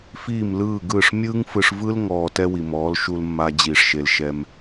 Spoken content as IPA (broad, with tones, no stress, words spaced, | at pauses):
fiː˦˨mlɯː˦˨ɡɯː˦˨ʂ mʲɯː˦ŋfɯ˧ʂvɯ˦l ŋɔː˧ tɛ˦wi˨mɔː˨˦l ʃu˧lmːa˧ d͡ʑiː˨ʂʃe˨l ʃɛ˧m